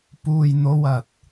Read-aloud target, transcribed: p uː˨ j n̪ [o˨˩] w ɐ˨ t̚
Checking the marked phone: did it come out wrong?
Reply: yes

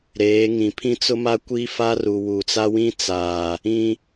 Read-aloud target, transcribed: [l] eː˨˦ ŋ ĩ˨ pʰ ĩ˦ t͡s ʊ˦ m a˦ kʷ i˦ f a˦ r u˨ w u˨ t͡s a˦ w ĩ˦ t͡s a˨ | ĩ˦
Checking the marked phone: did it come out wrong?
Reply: yes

